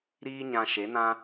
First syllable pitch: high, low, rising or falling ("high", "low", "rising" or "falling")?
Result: high